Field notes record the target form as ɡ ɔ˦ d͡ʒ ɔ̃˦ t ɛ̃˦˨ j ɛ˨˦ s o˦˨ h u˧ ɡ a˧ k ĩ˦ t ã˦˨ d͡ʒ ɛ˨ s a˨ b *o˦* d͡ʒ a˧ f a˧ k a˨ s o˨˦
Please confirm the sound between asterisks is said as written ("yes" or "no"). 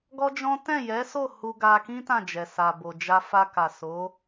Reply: no